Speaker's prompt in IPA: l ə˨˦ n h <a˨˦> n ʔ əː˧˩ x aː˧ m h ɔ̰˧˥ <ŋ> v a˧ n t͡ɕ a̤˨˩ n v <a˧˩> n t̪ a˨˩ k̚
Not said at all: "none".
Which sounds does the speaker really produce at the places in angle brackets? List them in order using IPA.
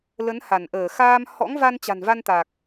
a˧˩, ŋ, a˧

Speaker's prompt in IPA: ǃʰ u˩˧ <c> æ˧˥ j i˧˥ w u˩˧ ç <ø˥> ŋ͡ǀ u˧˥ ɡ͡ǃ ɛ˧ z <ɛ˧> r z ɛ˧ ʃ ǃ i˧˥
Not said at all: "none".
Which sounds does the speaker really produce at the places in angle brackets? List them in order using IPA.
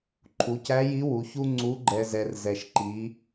c, u˥, ɛ˧

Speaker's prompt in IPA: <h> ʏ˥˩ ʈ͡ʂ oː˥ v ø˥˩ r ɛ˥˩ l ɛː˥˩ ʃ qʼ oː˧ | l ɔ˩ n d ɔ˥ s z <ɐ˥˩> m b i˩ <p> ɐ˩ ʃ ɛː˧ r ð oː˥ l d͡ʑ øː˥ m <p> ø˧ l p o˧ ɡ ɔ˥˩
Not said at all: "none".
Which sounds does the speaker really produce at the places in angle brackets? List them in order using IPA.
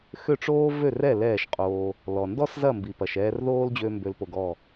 x, ɐ˥˩, p, b

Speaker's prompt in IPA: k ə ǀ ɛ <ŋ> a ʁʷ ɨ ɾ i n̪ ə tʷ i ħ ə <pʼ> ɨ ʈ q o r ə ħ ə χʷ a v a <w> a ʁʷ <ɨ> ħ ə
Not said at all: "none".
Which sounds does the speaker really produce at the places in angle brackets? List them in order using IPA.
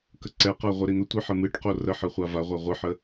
q, m, ʁʷ, ɨ

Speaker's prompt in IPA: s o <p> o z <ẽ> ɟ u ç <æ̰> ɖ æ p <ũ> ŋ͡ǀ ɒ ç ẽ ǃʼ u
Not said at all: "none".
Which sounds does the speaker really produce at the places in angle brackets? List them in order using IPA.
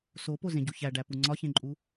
p, ẽ, æ, u

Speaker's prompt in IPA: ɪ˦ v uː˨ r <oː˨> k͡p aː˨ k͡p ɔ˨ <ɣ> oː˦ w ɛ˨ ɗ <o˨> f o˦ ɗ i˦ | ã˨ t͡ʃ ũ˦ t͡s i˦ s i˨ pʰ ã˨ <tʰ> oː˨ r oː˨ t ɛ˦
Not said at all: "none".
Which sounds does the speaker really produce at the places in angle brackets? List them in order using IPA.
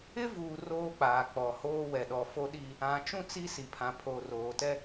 oː˦, h, ɔ˨, pʰ

